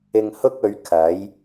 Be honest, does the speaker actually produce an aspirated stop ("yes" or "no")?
yes